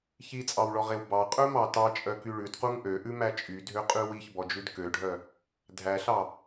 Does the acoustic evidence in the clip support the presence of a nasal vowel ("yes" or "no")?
no